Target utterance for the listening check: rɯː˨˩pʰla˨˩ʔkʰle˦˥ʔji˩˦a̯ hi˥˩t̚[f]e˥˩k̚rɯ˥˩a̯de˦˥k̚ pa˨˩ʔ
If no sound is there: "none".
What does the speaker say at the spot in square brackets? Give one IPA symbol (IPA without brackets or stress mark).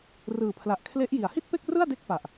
p